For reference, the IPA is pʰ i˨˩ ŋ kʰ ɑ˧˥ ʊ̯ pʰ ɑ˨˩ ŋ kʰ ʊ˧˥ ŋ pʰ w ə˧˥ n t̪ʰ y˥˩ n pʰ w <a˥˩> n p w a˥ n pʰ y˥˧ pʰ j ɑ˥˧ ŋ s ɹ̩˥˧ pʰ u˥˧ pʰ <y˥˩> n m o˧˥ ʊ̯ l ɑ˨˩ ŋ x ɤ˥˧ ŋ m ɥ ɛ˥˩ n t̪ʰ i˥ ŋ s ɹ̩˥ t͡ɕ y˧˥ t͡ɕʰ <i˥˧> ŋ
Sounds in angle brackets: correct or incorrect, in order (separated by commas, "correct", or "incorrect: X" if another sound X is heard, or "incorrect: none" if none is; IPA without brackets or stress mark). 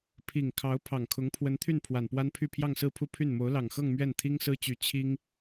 incorrect: a˨˩, correct, incorrect: i˥